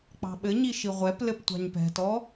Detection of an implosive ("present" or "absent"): present